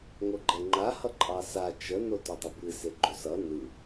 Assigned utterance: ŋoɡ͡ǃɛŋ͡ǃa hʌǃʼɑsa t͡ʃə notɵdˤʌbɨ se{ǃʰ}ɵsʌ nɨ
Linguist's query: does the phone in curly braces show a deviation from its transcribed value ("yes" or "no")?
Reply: yes